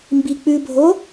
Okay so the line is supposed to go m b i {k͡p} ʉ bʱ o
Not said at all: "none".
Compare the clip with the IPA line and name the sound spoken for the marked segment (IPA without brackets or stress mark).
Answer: k͡p